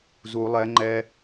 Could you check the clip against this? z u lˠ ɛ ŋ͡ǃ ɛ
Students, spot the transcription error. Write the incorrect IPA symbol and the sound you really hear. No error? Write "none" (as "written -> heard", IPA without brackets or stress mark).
none